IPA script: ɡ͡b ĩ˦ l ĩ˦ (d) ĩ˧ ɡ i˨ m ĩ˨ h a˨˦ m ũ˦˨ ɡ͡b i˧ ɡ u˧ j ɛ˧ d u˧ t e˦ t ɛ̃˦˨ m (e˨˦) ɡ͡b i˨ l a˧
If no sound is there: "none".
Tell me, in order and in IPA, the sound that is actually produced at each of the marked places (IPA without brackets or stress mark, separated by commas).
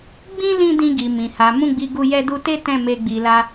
d, e˧